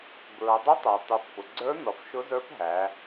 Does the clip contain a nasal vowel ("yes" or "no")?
no